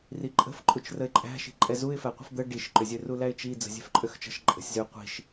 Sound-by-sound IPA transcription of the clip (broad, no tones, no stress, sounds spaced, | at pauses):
r i ǃʼ ə̤ f ǃʼ u t͡ʃ r ə ɪ̯ ǃʼ æ̤ ʃ i̤ ǃʼ ɛ z u ɪ̯ f æ qʷ ə̤ f d̪ ə ɖ i ʃ ǃ ʏ zʲ ø r u l æ ɪ̯ t͡ʃ i d͡z ə̤ zʲ ɛ̤ f ǃʼ ø x t͡ʃ ə̤ ʃ ǃʼ ə̤ sʲ z ø qʷ i̤ ʃ